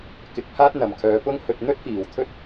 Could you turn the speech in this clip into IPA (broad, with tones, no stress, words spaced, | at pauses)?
kɪ˧k̚ pʰaː˥t̚n̪ɐ˨mkʰœː˨˧ pʊ˥ŋ hɵ˧t̚ n̪ɵ˥t̚fiː˨w t̪ʰɵ˥t̚